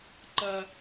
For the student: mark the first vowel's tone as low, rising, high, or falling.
high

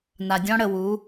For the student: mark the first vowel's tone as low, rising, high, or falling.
low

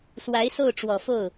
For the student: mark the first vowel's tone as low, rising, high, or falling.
rising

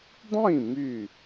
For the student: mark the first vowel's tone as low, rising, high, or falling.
falling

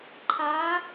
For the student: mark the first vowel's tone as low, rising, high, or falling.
rising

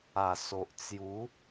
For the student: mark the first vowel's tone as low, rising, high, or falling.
low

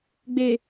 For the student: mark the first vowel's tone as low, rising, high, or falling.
low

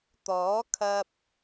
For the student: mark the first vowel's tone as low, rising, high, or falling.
rising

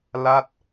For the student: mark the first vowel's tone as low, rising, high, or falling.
falling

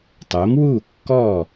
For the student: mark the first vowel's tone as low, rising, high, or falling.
rising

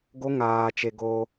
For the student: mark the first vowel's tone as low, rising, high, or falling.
high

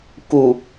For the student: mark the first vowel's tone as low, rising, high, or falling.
low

